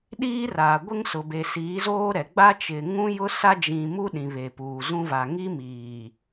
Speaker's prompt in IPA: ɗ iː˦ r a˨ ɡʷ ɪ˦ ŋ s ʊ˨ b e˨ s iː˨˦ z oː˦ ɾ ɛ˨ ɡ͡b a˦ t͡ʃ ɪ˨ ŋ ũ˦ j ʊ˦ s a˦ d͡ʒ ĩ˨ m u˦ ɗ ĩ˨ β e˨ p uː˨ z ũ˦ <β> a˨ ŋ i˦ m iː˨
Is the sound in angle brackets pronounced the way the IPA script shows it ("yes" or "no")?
no